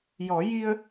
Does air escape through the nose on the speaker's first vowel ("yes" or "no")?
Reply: no